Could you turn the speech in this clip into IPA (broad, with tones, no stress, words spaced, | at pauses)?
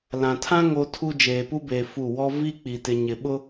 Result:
lã˨tʰã˦ ŋo˦tʰu˦ d͡ʒeː˨pu˦beː˨ fu˦˨ wɔ˦ vi˦k͡pi˨ tɪ˨ ɲɪ˨ɓʊ˦